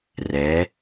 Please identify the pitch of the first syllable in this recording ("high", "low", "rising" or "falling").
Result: rising